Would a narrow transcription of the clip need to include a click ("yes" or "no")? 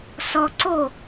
yes